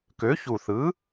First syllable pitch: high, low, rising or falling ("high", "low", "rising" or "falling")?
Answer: rising